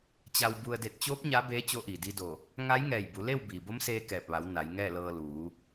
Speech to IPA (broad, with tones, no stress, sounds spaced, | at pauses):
t͡ɕ a˧ w b u˧ ə̯ d e˧˩ t̚ t͡ɕ oː˧˥ p̚ ɲ a˧˥ b eː˧˥ t͡ɕ o˧˥ ʔ iː˩ d i˧ d o˧˩ | ŋ a˧˥ j ŋ ɛː˧˩ j b u˩˧ l e˥˨ w b iː˩ b o˧˥ m s eː˧ k ɛː˧˩ p̚ ʋ a˩˧ w n a˩˧ j ŋ ɛː˥˨ l ɤː˧ l uː˩˧